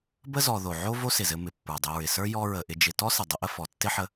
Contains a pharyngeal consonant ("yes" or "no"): yes